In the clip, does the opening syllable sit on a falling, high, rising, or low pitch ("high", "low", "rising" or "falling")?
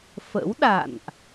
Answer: rising